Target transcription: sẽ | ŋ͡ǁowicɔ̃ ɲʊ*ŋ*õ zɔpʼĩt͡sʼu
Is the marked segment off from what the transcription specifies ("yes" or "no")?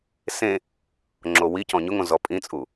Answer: no